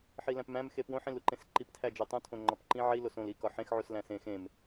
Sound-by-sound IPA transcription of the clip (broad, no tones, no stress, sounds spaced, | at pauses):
ħ i l æ̃ p m æ̃ m x e p w õ ħ ĩ l u ǃ ẽ s ǃ i p tʰ æ d͡ʒ o tˤ ũ tʰ õ ŋ͡ǃ ɒ p ǃ ĩ ʕ i l o s õ l i k ɒ ħ ẽ x ʕ u s l æ̃ s ẽ x ẽ m